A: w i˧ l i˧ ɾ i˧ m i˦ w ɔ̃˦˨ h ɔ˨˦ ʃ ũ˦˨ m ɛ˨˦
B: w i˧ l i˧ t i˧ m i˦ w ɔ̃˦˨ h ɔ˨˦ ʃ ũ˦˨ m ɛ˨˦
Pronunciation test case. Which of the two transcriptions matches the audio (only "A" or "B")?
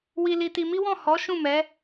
B